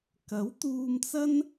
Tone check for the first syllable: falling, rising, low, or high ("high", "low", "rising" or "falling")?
rising